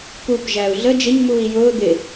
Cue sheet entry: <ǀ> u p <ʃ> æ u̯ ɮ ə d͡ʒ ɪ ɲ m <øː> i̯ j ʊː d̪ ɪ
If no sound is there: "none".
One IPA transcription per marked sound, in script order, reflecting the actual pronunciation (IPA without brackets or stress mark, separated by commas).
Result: k, ʒ, uː